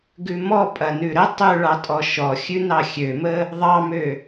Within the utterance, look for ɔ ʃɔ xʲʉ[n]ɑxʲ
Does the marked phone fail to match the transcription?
no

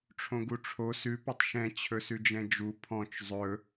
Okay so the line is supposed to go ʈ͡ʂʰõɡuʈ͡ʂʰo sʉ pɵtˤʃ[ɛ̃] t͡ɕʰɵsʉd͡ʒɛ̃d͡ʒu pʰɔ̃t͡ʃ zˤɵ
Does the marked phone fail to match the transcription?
no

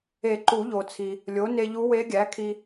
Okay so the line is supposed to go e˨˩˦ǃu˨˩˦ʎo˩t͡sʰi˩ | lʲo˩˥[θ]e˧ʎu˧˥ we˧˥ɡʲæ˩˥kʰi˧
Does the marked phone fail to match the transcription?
yes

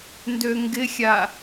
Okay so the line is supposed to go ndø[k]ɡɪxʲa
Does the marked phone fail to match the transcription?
yes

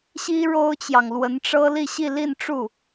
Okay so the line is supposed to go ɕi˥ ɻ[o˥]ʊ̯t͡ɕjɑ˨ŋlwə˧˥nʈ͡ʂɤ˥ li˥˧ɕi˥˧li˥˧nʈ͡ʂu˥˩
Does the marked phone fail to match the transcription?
no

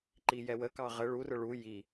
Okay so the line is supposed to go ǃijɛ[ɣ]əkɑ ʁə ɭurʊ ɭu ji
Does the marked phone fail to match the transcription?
yes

